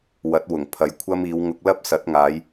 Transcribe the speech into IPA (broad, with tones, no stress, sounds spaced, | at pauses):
w ɐ˨˥ t̚ w ʊ˨˩ ŋ pʰ ɐ˨˧ j kʷʰ ɐ˥ m iː˨˧ w ŋ ʊ˧ k̚ l ɐ˥ p̚ s ɐ˨˥ t̚ ŋ aː˨˧ j